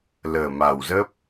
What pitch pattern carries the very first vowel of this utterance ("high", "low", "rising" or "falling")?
low